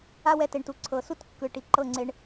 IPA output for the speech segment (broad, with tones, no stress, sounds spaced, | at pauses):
a˦ w ɛ˧ t e˨ ɳ t u˨ ǀʰ ɤ˨ s u˦ t kː ɯ˨ ʈ i˨ ǃ ɤ˦˨ ŋ͡ǀ e˧ ɳ